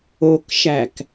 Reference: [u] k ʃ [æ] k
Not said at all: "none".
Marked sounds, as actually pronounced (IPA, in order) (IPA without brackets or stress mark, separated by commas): o, æ